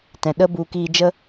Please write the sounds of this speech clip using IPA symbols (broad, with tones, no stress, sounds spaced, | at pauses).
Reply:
t ɛ̃˨ ɗ ə˦ b u˧ k iː˧ d͡ʒ ə˦